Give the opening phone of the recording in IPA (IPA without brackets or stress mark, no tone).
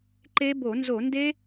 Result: ǃ